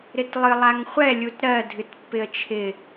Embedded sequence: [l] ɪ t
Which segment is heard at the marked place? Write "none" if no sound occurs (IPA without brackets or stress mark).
ɾ